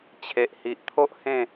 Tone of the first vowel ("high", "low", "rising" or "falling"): low